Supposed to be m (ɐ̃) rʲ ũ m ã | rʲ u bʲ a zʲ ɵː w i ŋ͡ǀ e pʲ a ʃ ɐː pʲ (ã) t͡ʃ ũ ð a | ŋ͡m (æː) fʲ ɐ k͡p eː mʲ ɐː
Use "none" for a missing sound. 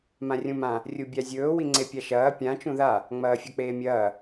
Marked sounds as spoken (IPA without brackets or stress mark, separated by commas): ã, ã, ɐː